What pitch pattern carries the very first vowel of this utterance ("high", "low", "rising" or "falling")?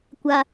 high